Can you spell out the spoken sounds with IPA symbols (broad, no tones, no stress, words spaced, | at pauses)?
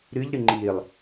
ɾɨʎɾɨ ŋ͡ǃilˠ